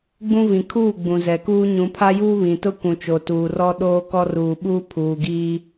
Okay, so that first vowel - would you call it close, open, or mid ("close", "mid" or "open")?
close